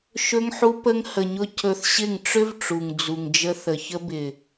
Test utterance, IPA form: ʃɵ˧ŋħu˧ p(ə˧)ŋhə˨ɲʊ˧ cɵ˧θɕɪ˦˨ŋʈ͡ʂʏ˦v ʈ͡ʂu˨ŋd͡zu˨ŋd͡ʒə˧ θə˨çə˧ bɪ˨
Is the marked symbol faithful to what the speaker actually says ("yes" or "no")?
yes